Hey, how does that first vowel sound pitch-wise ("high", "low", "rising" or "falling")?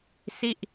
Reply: falling